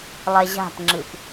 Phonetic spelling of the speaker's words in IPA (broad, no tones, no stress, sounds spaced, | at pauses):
lˠ ɛ ʑ a̤ p ŋ͡ǁ ɨ p